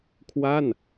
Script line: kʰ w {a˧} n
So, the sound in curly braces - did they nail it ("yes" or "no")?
no